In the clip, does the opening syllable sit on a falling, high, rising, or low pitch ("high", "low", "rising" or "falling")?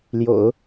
low